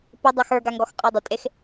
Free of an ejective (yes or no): no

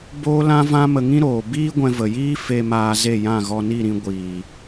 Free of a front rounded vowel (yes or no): yes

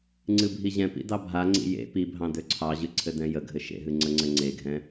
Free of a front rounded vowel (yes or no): no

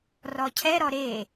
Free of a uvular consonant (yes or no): yes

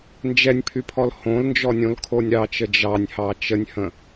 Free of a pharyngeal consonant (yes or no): yes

